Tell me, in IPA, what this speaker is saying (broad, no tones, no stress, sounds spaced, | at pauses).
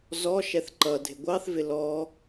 z ɔ ʃ ɛ θ ǃ ʌ dʱ ɪ ɡʷ ɑ θ v ɪ l ɔ